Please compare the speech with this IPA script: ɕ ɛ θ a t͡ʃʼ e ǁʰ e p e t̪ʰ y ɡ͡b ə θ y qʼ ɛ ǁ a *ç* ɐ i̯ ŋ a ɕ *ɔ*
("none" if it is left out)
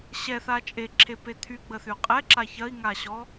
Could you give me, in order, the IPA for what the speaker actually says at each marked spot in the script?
ç, ɔ

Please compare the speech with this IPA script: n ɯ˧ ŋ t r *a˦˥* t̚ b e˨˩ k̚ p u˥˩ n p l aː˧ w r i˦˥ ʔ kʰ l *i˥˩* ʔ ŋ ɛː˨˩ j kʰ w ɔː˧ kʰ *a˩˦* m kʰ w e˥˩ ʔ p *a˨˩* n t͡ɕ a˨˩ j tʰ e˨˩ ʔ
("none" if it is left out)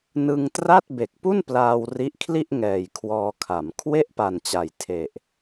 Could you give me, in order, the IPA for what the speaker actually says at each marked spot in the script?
a˥˩, i˥˩, a˩˦, a˨˩

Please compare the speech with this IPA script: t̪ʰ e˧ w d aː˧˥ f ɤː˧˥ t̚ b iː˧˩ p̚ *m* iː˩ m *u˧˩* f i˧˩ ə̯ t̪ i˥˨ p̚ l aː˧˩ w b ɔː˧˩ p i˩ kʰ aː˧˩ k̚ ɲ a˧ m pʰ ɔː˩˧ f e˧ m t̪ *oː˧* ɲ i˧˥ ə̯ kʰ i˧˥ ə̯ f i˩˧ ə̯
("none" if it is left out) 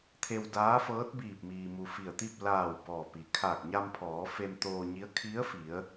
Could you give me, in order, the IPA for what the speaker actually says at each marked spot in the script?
m, u˩, oː˧

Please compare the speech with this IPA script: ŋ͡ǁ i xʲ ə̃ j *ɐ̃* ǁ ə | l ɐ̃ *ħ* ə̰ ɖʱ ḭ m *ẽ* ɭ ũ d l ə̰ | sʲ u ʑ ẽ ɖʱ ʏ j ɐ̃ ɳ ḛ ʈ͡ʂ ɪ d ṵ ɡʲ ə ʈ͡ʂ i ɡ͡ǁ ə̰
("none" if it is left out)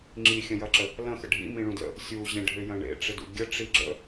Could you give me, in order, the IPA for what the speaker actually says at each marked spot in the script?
ɐ, x, ĩ

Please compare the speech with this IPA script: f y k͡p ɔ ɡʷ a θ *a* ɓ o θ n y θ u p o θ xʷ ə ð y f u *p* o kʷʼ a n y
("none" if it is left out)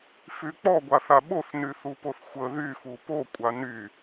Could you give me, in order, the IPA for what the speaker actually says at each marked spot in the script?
a, p

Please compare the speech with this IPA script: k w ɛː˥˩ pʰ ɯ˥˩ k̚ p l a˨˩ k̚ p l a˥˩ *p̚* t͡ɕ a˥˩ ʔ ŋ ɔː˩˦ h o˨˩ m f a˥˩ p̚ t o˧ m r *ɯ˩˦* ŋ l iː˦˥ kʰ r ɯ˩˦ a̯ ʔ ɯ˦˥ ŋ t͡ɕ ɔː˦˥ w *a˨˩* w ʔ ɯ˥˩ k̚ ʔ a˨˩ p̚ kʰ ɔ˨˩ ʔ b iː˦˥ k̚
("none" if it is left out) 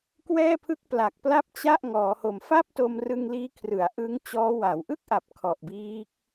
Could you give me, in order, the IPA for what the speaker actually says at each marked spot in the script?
p̚, ɯ˧, a˩˦

